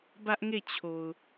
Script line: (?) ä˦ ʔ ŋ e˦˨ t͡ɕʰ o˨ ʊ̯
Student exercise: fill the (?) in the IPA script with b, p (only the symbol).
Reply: b